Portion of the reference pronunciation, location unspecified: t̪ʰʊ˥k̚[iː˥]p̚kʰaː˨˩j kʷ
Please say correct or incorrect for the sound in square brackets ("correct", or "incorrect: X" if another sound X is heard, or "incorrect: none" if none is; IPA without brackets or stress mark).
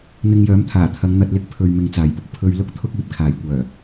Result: incorrect: iː˨